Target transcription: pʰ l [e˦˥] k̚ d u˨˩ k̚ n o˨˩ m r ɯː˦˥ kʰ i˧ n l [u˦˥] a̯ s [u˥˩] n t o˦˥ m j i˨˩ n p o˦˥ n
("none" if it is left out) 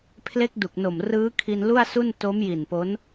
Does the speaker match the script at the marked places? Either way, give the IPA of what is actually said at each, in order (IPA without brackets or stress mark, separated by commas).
e˦˥, u˥˩, u˥˩